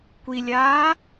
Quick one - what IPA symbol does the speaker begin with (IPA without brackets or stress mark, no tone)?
kʷ